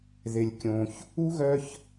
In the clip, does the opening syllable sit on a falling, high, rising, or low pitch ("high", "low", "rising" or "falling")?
low